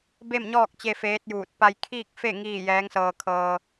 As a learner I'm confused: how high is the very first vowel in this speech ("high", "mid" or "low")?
mid